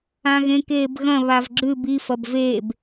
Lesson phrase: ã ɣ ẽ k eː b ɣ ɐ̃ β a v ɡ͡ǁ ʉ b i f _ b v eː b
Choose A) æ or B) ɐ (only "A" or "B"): B